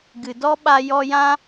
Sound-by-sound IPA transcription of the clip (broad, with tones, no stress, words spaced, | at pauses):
ɡɨ˨dɔ˦ɓa˧ jɔ˧jã˦